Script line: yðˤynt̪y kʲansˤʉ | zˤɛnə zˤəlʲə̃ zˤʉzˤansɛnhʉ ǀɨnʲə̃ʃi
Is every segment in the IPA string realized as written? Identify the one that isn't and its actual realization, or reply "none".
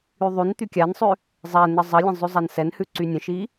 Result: ɨ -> y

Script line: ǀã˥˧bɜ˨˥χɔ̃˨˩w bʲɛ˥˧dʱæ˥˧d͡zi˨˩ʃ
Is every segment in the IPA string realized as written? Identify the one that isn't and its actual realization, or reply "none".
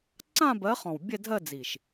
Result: æ˥˧ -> ɜ˥˧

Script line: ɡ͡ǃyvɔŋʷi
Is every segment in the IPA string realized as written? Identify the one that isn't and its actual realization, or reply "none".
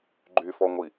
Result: v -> f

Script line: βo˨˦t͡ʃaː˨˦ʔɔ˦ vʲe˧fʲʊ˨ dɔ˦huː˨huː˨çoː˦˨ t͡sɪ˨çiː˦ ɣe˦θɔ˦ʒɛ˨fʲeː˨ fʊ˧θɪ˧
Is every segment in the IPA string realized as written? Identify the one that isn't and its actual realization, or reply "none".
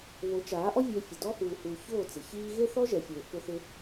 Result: none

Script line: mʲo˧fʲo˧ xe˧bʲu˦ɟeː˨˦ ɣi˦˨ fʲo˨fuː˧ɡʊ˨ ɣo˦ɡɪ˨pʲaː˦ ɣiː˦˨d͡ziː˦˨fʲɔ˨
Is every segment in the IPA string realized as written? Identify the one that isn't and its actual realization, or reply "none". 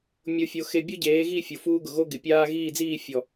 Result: none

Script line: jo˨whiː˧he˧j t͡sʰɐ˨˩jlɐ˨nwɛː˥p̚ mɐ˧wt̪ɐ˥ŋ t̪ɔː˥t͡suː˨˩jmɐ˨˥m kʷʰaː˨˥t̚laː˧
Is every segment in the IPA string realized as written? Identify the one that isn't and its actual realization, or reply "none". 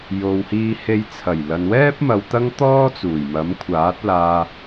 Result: none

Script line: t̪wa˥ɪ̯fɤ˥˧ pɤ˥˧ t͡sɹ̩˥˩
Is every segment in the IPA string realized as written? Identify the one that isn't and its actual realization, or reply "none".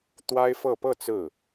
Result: none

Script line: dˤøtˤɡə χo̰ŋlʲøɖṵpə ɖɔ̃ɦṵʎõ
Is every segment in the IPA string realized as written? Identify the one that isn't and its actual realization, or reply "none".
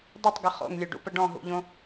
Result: none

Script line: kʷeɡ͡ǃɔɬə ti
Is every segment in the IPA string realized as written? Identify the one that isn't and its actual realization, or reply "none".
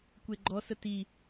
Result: ɬ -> s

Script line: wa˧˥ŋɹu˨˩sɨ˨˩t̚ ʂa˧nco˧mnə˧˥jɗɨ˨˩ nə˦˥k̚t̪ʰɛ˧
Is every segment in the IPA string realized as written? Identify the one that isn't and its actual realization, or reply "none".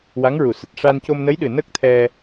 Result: none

